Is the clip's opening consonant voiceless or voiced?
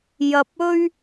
voiced